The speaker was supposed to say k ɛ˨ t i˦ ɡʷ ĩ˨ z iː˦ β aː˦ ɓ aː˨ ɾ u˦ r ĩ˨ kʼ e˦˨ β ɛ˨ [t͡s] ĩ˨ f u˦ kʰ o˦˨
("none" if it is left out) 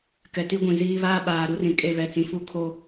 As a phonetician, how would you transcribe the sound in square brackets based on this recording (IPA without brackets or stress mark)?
t͡s